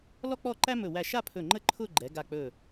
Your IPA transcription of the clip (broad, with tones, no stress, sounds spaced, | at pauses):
l ɔ˥ k͡p ɔ˥˧ ǃ æ˥ m ɵ˧˩ w æ˧˩ ʃ a˥˧ pʰ ɵ˧˩ ŋ͡ǃ ə˥ ǃʰ ʊ˥˧ ɡ͡ǃ ɛ˩˧ ɡ a˧˩ k͡p ɵ˧˩